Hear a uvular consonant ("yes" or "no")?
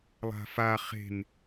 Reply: yes